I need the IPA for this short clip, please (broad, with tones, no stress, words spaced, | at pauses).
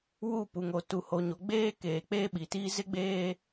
wu˦˨ pu˨ŋo˨ tu˨ho˨ɲo˨ ɡ͡beː˦keː˨ k͡peː˦ɓi˨tiː˦ zɪ˦ɡ͡beː˦